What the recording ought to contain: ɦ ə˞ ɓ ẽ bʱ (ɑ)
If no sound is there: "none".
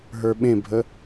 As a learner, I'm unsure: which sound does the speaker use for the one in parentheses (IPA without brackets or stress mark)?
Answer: ə